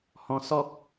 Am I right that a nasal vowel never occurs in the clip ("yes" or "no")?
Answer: no